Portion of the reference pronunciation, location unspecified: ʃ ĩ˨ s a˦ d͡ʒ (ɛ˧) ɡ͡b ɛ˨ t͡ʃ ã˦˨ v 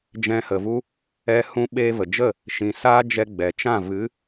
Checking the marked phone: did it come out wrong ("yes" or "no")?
no